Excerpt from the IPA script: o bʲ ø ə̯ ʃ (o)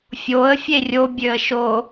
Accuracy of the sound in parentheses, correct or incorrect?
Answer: correct